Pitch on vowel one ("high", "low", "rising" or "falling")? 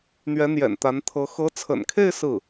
rising